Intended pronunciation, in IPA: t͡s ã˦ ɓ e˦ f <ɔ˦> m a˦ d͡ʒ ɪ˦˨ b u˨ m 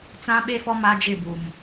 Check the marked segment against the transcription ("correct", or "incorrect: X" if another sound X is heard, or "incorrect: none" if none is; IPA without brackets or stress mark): correct